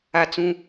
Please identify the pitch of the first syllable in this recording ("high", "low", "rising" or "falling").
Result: high